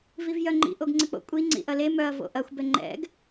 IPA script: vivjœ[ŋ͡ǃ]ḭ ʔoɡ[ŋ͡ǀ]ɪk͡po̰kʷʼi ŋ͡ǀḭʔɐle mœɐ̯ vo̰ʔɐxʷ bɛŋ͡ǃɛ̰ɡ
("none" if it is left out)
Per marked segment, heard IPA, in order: ŋ͡ǃ, ŋ͡ǀ

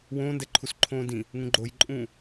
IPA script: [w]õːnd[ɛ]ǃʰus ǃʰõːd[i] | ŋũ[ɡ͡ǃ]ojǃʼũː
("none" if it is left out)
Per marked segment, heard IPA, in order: w, ɛ, ĩ, ɡ͡ǃ

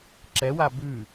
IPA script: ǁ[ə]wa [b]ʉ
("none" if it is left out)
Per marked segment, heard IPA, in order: ɛ, b

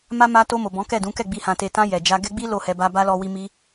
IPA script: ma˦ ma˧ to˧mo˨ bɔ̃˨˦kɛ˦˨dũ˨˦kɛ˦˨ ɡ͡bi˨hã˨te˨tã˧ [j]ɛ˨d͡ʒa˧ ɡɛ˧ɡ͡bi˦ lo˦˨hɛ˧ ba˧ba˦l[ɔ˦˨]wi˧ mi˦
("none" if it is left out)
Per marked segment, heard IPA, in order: j, ɔ˧

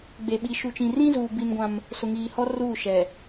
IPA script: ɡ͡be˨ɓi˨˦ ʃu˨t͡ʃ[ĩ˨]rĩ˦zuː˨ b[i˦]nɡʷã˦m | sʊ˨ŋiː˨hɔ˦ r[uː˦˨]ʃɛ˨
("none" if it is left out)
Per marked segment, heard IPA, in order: ĩ˨, i˦, uː˦˨

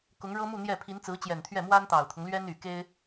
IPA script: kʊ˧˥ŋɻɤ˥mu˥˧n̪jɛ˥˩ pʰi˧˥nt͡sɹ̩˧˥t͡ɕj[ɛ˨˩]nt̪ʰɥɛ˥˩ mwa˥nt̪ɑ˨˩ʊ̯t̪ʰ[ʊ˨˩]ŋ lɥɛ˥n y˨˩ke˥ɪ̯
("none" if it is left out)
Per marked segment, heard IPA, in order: ɛ˨˩, ʊ˦

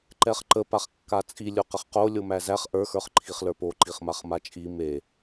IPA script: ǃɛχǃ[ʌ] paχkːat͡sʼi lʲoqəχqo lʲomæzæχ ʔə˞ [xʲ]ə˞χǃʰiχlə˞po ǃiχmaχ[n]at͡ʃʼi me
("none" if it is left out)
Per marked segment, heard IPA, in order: ə, x, m

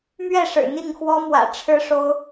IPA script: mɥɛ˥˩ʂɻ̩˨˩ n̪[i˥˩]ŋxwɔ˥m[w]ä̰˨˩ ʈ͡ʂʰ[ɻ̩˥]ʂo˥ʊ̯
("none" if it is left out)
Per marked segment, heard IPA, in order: i˥˩, w, ɻ̩˥

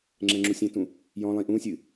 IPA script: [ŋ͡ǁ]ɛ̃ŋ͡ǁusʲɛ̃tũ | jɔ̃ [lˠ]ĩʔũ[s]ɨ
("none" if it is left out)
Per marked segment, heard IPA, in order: ŋ͡ǁ, lˠ, sʲ

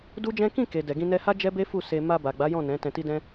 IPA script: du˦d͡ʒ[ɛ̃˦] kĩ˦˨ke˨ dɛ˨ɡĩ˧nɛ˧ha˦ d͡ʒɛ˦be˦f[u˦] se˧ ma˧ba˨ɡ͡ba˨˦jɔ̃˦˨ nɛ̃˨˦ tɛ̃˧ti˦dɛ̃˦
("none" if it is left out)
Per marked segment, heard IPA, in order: ɛ̃˦, u˦˨

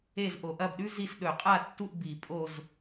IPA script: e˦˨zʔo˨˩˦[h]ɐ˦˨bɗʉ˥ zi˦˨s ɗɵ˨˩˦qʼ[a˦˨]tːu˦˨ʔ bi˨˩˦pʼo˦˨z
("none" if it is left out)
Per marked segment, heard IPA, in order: ʔ, a˦˨

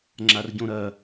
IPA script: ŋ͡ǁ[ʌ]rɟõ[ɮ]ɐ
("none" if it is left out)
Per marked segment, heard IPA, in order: a, ɾ

